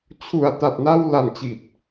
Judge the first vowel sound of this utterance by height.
high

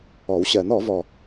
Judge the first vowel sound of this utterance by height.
mid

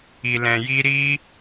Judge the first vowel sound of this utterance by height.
high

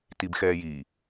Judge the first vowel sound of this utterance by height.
high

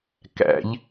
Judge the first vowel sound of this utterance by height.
low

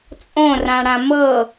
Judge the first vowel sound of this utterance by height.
mid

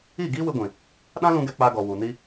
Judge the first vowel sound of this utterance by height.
high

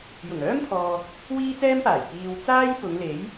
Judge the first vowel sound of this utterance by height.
high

